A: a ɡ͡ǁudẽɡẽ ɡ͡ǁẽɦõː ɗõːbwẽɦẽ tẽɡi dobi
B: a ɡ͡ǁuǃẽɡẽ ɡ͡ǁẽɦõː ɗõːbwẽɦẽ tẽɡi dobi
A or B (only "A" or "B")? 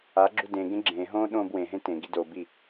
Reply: A